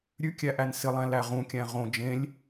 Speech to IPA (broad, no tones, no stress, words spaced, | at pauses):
ɾʲʉkʲæʔæn sɪlˠæ̃ læʁũkʲæ̃ ʁõ d͡ʒẽlʲ